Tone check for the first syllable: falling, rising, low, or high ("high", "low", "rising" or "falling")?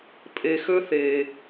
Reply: low